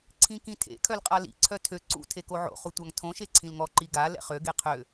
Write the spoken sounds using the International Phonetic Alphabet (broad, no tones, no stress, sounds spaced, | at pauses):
ǀʰ ĩ k ĩ tʰ ḛ kʰ œ l qʼ a l ḭ ǀʰ œ tʰ ø ǀ ṵ tʰ e k o ʕ o̰ χ u tʷ a ŋ tʰ õ ʃ e ǀʰ ĩ l ŋ ɔ ǃ i ɡ a l ɛ̰ χ ø ɡ e qʰ ø